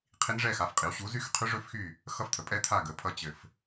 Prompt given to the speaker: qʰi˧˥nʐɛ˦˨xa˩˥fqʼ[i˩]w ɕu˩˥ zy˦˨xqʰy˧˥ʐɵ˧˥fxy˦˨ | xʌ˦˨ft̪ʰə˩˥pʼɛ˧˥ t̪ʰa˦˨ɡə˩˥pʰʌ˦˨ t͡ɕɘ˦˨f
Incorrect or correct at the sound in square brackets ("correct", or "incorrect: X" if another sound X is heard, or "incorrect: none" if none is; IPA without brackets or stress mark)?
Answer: incorrect: i˩˥